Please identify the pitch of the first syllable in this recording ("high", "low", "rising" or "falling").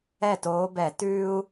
falling